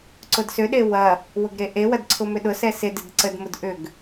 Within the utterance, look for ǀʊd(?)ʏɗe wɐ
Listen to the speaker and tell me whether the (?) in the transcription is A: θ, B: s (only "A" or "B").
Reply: B